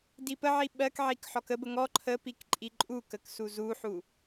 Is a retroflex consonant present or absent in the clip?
absent